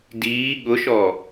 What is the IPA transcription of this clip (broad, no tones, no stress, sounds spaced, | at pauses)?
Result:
d iː ɠ ʊ ʃ ɔ